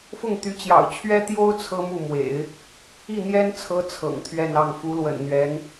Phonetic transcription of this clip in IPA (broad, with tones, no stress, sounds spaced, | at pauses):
f ʊ˥˩ ŋ t̪ y˧˥ t͡ɕ j ɑ̰˨˩ ʊ̯ t͡ɕʰ ɥ ɛ˥ t̪ j o˥ ʊ̯ t͡sʰ ɤ˥ m u˥˩ m w ḛ˨˩˦ ɪ̯ | i˥˩ n̪ j ɛ˥ n t͡sʰ ɤ˧˥ t͡sʰ ɤ̰˨˩ ŋ t̪ʰ ɥ ɛ˥˧ n ɑ˥˩ ŋ f u˧˥ l w ə̰˨˩ n n̪ ɥ ɛ˧˥ n